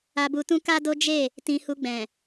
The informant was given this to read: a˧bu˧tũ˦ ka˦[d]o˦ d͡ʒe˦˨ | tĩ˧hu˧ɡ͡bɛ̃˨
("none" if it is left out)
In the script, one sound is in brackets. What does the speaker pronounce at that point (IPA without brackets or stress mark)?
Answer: d